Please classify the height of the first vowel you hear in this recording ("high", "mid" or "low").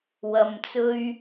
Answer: low